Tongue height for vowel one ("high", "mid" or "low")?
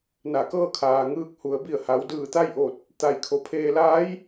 low